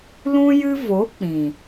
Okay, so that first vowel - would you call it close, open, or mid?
close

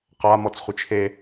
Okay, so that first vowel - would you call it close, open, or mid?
open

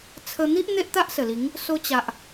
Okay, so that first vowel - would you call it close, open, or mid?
mid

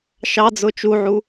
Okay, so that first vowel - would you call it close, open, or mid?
open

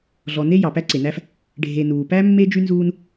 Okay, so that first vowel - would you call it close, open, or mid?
mid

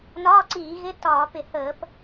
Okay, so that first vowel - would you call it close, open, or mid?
open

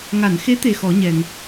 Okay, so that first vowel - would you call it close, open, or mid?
open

